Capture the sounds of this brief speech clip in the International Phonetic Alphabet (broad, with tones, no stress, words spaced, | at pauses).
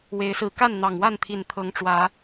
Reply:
we˨˦ɪ̯sɹ̩˨˦ ka˥˨nn̪ɑ˨˩ŋwa˥˨nt̪ʰi˨˩n t̪ʰɤ˨˦ŋʈ͡ʂwä˨˦